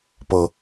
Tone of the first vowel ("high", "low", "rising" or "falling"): low